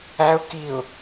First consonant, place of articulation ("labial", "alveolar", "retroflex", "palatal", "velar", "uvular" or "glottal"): velar